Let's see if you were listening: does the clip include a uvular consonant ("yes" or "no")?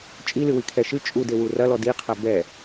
yes